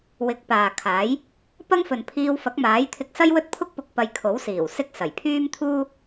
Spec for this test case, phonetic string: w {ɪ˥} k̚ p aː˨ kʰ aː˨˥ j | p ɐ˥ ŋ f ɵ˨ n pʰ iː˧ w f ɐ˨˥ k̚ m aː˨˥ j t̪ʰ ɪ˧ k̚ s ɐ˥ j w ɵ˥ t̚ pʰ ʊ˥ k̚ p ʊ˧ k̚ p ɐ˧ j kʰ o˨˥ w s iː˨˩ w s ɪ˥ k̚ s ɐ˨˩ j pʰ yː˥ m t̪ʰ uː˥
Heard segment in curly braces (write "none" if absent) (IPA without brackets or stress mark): ɪ˨˥